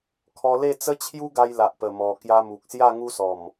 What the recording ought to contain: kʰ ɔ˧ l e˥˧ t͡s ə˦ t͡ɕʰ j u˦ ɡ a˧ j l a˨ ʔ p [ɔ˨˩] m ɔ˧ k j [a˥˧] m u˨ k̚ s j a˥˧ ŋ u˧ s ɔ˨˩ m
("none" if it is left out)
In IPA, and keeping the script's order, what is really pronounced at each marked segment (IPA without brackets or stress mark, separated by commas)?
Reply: ə˨˩, a˧